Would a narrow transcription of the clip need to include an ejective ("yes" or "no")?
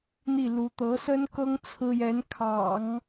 no